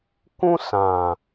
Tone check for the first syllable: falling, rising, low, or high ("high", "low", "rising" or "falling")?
high